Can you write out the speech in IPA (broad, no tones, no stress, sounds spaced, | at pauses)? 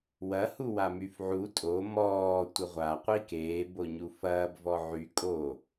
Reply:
w ɐ h u w a m y f ʕ u tʼ o m ɔː tʷ ə ʁʷ a qʷ i k eː b o ɲ u f ɐː b v ɔ ʕ y kʼ o